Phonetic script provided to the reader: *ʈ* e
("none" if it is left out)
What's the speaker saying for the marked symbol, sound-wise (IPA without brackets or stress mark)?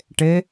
ʈ